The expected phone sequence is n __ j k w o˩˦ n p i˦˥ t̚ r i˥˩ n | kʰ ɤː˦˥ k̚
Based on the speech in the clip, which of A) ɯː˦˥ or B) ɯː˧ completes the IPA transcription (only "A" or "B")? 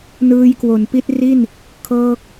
B